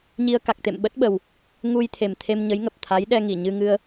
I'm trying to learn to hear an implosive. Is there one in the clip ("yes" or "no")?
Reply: yes